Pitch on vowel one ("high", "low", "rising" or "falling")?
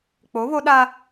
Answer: rising